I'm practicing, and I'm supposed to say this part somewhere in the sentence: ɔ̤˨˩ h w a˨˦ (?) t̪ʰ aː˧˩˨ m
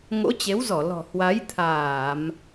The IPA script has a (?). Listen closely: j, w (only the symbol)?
j